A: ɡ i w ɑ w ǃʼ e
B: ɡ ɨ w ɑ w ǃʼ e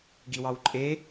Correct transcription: A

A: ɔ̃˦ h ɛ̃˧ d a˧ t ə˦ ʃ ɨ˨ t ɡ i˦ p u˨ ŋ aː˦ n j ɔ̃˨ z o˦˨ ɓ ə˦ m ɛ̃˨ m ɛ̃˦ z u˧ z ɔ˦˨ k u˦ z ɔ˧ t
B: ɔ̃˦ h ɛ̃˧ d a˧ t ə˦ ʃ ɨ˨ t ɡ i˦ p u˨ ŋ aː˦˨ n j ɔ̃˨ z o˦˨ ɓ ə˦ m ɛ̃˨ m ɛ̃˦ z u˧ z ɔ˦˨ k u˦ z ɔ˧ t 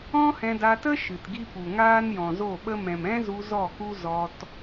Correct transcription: A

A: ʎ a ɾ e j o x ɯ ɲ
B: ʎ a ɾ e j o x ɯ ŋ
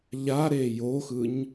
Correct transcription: A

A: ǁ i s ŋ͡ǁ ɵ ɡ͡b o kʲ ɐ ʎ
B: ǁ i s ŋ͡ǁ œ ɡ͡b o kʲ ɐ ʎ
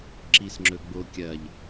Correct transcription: A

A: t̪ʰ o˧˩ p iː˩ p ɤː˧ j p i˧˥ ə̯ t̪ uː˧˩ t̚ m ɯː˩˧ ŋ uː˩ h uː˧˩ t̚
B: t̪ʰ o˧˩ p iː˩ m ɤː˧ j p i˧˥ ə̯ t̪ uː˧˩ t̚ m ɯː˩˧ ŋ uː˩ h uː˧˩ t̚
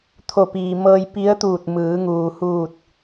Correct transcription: B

